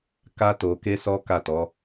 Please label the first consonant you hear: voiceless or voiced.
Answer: voiceless